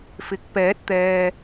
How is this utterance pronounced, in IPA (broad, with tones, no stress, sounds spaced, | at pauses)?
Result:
f ɪ˨ k̚ p ɛː˨˥ t̚ t̪ ɛː˨